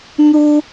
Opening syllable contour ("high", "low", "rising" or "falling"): high